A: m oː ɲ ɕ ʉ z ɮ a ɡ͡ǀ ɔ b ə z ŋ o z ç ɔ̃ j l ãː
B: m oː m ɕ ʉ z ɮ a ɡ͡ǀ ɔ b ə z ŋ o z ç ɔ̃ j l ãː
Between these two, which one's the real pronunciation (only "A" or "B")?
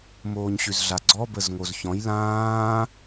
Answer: A